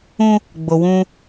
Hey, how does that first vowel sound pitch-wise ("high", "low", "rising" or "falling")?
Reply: high